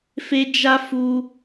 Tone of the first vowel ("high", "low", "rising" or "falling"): high